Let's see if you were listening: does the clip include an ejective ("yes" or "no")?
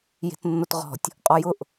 yes